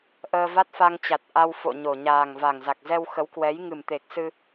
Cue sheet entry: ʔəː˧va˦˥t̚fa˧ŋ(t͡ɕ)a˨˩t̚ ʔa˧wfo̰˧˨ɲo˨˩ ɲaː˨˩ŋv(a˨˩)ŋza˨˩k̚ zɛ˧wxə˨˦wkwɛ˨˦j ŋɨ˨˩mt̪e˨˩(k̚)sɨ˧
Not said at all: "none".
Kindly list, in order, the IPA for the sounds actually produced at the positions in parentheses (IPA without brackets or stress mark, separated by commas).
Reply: t͡ɕ, a˨˩, k̚